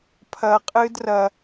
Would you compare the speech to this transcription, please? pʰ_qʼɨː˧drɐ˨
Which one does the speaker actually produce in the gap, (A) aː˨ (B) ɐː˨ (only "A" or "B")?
B